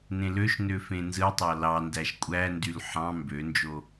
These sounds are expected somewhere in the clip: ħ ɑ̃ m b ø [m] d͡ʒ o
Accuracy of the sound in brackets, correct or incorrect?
incorrect